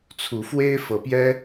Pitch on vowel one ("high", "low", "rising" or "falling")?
rising